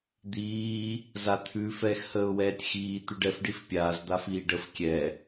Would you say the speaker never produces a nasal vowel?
yes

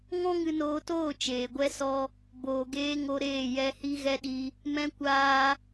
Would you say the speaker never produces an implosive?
no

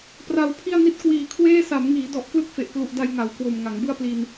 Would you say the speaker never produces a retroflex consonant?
yes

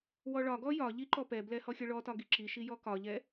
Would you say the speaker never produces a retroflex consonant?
no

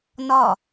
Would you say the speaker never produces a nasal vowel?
yes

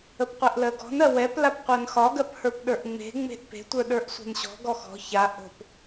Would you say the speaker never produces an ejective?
yes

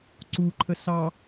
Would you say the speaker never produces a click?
no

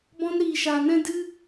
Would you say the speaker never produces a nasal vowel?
no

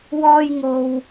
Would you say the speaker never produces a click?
yes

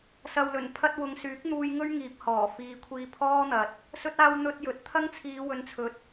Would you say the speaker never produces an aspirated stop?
no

